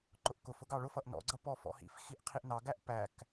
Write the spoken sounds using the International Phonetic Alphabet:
ǃ ʊ ʔ k ʊ f ʊ ɡ ɑ ɭ ʊ f ʌ ʔ n ɔ̰ ɡ͡ǀ ʌ p ɔ f ɔ̰ h ḭ f x i ʔ qʰ i ʔ n ɑ ɡ æ ʔ p æ k

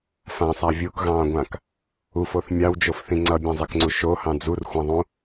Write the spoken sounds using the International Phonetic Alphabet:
f ã sˤ a vʲ u k ɣ ɑ̃ː ɡʷ ã k | u f o θ mʲ ɑ w d͡ʒ o f θ ĩ ŋ͡ǀ ʌ bʲ ã zˤ ɛ k ŋ͡ǀ u ʃ o h ɑ̃ d͡z u r xʷ ã ðˤ ũ

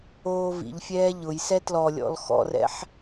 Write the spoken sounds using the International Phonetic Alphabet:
oː v ḭ ʎ fʲ ɛː ʎ ʊ j s ɛ t l ɔ lʲ ɔ̰ l x ɔ̰ r ɛ̰ ħ

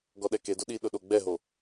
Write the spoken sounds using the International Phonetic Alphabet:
ɡ ɔ ɗ ɛ k e d ʊ ɗ i ɗ ʊ ɗ o ɡ͡b ɛ ɦ o

